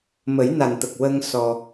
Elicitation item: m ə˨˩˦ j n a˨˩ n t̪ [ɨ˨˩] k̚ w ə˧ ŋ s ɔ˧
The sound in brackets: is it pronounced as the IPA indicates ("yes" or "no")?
no